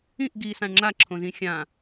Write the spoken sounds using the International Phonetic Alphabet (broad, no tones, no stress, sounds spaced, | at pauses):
ĩ ʔ ɡ i s ã ɳ ŋ͡ǁ a ǁʰ õ z ĩ xʲ ã